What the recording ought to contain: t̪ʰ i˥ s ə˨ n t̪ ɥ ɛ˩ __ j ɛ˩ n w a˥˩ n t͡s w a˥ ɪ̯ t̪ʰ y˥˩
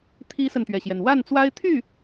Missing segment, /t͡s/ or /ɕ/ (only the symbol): ɕ